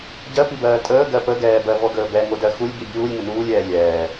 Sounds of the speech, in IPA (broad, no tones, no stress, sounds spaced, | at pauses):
ɟ ɜ p i b ɜː tʼ əː ɡ ɜ p ə ɡ ɛː b ɜ v ɔ ɡ əː b ɛ ŋ o d ɜ x u lʲ b i bʲ uː lʲ ŋ ə n uː lʲ ɛː lʲ ɛː